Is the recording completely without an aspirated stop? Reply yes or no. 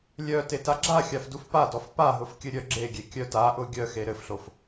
yes